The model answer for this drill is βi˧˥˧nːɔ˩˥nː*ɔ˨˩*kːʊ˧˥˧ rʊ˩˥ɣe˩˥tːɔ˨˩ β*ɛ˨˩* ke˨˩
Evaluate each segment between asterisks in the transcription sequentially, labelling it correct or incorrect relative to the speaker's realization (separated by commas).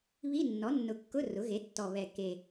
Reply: incorrect, correct